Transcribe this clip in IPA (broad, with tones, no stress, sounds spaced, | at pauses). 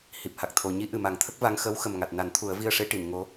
h i˨˩ p̚ h a˨˩ k̚ t̪ʰ o˨˩˨ ɲ i˧˥ ʔ ɨ˨˩ m a˨˩˦ ŋ t̪ʰ ə˦˥ k̚ v a˧˥ ŋ x əː˧˥ w x ə˨˩ m ŋ a˨˩ t̚ n a˨˩˦ n t̪ʰ u˨˩˦ ə̯ v i˧ ə̯ ʂ e˧˥ ʈ i˨˩˨ n ŋ o˧˥